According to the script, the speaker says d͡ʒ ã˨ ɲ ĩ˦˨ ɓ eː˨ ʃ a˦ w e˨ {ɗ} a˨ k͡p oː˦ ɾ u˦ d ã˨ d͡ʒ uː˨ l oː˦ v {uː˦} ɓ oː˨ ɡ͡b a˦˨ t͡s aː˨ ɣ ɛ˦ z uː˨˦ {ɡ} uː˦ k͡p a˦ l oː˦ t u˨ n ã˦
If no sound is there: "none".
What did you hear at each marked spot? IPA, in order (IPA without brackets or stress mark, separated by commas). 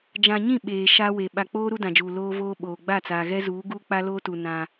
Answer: ɓ, oː˦, ɡ